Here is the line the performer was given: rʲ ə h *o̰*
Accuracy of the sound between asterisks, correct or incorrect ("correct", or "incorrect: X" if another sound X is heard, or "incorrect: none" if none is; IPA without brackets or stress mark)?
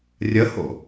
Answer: correct